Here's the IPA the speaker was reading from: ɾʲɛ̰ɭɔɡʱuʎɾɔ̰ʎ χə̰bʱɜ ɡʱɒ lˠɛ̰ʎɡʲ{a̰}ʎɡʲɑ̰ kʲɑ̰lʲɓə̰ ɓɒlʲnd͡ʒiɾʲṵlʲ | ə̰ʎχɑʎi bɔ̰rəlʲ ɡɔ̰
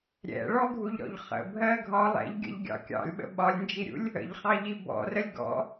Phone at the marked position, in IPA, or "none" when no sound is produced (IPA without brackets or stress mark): ə̰